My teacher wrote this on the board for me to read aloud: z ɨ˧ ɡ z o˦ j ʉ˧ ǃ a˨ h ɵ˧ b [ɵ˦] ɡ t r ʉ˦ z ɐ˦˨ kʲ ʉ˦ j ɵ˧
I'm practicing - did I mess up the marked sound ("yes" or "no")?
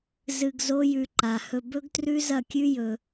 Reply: no